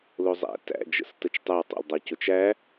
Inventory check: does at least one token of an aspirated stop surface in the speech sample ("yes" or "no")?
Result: no